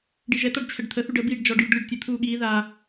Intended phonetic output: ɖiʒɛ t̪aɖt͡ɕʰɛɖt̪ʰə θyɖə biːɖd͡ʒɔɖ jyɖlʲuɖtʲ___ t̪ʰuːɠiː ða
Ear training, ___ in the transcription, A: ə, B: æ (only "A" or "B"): A